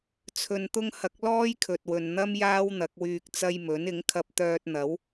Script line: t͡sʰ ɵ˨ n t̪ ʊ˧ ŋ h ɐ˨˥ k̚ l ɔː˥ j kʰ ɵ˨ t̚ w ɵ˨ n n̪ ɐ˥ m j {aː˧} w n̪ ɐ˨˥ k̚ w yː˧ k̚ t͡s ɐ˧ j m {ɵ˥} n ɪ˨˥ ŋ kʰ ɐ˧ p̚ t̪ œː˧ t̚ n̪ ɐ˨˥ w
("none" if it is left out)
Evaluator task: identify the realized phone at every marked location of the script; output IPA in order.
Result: aː˥, ɵ˨˥

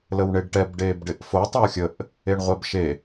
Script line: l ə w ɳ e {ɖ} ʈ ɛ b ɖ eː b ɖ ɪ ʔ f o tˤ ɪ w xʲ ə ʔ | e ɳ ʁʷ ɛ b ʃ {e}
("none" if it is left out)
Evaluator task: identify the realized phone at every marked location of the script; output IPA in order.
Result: ɖ, e

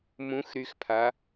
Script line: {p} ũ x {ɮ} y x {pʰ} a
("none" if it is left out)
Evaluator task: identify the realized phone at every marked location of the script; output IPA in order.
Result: m, ɾ, pʰ

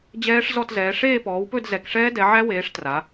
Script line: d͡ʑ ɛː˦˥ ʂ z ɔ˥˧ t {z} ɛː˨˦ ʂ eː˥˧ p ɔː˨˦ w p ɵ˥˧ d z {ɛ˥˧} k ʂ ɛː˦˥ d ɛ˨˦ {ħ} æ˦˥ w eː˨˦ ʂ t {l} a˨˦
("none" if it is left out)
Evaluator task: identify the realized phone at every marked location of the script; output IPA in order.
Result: z, ɛ˨˦, ʕ, r

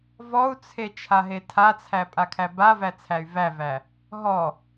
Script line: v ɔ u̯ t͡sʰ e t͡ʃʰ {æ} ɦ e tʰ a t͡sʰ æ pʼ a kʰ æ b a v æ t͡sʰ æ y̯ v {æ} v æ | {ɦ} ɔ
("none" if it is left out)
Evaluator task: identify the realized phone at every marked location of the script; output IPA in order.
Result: a, æ, ɦ

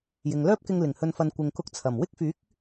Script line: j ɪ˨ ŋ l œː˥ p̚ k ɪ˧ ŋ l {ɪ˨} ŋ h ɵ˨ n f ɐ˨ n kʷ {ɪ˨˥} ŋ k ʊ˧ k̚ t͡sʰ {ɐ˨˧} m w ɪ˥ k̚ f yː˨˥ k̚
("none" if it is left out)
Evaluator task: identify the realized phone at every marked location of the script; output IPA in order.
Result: ɪ˨˩, ɪ˨, ɐ˨˩

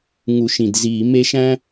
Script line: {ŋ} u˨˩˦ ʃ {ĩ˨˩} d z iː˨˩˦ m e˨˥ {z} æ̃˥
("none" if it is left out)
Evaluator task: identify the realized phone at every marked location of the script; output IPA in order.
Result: ŋ, ĩ˨˩, ʃ

